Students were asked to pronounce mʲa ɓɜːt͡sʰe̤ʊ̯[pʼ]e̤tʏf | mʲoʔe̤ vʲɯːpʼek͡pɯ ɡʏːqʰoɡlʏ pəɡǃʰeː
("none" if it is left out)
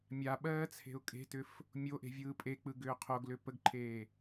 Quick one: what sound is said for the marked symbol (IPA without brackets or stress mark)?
kʼ